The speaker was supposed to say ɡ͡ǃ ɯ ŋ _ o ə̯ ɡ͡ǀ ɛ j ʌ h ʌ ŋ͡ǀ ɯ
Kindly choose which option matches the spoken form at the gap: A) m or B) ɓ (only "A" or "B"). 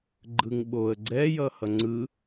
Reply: B